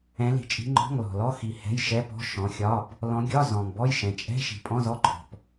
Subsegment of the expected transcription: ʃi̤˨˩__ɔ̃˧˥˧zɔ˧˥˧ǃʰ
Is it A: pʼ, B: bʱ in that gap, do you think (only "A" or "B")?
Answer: A